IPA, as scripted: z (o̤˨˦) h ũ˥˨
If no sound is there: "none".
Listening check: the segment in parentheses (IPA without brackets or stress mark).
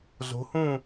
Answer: o̤˨˦